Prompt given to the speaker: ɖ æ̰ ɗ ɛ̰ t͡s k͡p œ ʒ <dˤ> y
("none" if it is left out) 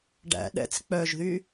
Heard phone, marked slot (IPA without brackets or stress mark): ð